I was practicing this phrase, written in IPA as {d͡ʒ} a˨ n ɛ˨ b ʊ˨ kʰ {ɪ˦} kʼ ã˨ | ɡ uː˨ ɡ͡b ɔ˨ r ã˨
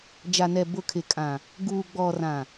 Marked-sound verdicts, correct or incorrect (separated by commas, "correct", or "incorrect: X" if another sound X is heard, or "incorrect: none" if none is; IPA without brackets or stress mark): correct, incorrect: ɪ˨